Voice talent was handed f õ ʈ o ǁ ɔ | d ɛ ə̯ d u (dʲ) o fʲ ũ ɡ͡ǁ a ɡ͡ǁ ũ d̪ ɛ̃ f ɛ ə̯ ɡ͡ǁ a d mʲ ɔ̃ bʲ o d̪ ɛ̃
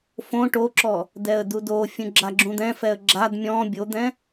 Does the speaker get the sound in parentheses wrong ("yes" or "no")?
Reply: yes